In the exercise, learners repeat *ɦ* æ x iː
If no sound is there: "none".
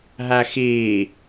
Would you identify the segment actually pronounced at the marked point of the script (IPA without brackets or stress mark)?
ɦ